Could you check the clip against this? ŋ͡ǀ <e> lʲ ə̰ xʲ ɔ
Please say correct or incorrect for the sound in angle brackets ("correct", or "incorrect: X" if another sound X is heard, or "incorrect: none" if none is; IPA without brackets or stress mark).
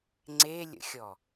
correct